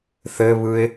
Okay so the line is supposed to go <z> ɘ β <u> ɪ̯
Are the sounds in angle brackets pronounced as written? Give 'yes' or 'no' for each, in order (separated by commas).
no, no